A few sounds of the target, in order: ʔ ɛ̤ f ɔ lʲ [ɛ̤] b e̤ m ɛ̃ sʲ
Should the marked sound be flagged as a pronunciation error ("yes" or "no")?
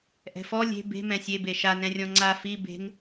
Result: yes